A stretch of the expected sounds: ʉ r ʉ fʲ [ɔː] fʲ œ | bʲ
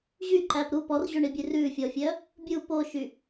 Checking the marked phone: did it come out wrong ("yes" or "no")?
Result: yes